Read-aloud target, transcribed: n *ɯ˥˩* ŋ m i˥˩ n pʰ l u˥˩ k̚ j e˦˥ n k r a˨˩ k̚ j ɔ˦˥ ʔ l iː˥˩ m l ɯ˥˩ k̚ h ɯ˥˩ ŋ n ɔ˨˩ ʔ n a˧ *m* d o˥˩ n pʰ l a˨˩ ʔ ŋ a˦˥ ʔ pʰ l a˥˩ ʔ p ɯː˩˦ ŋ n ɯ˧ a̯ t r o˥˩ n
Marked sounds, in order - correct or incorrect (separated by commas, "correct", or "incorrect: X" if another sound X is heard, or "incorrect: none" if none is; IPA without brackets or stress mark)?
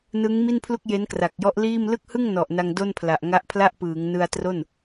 incorrect: ɯ˦˥, incorrect: ŋ